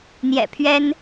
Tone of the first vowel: low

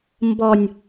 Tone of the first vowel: low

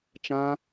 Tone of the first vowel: high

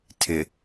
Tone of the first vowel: low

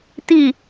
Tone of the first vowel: falling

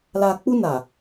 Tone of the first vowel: low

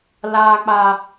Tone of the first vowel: low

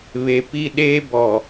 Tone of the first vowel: low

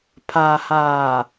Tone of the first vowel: low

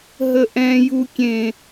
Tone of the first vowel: high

